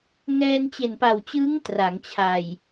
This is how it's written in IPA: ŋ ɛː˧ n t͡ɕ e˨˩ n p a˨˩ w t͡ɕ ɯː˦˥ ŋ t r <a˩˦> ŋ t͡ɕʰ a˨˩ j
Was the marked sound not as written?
no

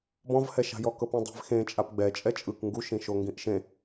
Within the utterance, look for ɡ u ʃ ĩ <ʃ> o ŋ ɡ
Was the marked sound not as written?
no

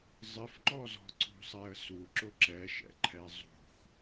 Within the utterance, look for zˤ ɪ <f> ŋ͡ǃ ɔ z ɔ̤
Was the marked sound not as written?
no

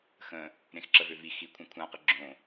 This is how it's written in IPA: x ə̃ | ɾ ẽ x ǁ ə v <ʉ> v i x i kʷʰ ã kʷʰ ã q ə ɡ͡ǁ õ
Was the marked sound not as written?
yes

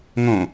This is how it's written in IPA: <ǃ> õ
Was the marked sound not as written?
yes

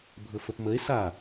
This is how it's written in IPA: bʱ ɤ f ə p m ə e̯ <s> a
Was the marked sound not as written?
no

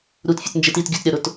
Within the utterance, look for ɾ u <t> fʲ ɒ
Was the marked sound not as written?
no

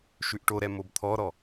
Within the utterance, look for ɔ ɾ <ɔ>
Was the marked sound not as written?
no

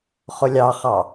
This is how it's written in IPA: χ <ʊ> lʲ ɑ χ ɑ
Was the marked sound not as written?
no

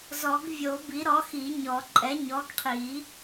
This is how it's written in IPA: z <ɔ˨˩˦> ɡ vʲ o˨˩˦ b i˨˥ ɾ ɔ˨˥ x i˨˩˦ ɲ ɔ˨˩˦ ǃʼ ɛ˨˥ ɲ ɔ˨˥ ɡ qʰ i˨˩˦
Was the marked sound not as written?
no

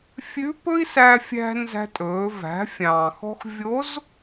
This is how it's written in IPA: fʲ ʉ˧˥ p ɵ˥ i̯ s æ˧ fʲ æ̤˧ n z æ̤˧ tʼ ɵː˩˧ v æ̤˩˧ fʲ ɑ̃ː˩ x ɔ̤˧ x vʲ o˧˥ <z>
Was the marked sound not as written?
no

